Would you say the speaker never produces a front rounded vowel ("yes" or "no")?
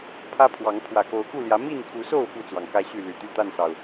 no